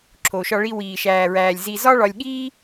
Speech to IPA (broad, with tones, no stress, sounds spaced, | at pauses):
ǁʰ o˨ ʃ ɒ˧ ɭ i˧ w iː˨ ʃ æː˨ ɹ æː˨ lʲ z i˧ z ɒ˦ ɭ ɒ˧ lʲ ɠ iː˦